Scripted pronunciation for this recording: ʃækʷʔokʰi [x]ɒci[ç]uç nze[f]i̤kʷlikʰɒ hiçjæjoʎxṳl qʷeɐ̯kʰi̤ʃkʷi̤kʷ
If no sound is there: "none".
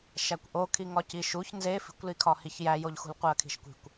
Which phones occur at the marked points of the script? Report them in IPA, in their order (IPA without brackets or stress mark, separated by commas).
ŋ, ʃ, f